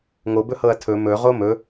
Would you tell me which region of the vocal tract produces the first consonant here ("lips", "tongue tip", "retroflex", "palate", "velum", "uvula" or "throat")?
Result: velum